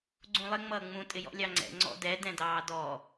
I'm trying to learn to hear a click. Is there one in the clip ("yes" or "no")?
yes